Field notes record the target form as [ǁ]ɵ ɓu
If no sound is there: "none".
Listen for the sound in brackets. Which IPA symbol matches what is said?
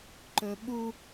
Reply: ǃ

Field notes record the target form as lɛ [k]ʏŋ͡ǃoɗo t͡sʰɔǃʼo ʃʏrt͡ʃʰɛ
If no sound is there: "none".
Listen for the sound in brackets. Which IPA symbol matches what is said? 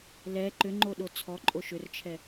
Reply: ǃ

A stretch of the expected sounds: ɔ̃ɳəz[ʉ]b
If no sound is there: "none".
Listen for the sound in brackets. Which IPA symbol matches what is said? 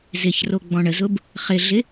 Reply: ʊ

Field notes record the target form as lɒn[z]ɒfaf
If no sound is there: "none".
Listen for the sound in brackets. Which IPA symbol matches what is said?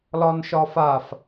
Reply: ʃ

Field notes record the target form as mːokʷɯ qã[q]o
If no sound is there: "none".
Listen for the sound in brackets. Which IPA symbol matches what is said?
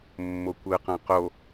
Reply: q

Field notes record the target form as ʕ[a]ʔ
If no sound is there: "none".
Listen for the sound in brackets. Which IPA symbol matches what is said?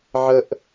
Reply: ə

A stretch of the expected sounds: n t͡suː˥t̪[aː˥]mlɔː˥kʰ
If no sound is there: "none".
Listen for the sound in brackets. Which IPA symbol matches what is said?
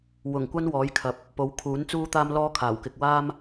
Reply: aː˥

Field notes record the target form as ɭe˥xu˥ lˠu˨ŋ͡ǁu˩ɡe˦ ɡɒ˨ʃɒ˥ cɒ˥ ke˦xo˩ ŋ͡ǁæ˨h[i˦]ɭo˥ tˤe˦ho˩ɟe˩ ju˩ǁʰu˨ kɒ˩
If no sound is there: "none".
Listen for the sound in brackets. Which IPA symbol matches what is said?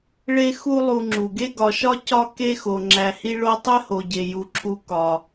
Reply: i˥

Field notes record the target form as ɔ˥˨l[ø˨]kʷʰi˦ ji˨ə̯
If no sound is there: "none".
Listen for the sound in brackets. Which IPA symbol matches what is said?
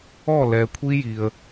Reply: ɛ˨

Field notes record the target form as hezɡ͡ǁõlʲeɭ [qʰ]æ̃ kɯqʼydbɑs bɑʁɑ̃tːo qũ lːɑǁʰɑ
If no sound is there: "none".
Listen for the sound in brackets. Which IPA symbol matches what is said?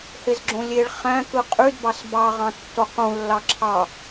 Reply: χ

